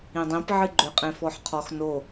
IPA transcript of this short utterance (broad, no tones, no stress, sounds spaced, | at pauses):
ĩ dˤ ĩ p ʕ ɨ ɡ͡ǃ ʏ qʼ ẽ f ɔ ħ qʰ ɔ x n o